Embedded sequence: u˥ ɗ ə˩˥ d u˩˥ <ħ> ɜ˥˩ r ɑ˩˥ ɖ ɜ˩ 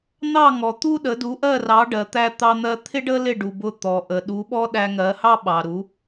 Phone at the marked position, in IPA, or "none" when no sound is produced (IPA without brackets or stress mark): ʔ